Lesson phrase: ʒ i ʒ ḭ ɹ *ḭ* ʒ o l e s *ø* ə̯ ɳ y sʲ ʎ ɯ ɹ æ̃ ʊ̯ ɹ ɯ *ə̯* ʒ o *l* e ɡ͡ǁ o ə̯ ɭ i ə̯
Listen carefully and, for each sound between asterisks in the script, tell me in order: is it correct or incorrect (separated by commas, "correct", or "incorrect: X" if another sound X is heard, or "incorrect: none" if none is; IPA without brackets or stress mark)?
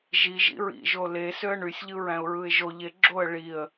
correct, correct, incorrect: ɪ̯, incorrect: ʎ